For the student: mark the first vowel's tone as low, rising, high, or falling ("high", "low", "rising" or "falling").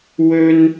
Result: high